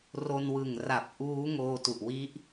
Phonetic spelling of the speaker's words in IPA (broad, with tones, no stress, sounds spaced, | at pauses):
r o˧ n w ɯ˨˩ ŋ r a˨˩ p̚ ʔ uː˦˥ ŋ oː˧ t u˨˩ ʔ w i˦˥ ʔ